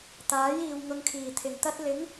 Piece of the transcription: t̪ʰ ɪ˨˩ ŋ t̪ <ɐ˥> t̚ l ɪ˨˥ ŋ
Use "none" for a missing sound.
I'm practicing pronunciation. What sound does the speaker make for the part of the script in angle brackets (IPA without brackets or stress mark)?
ɐ˥